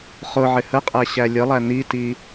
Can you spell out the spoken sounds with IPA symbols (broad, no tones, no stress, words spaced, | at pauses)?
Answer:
χʊʕɪ həqʼæ ɕælʲəlˠæ niti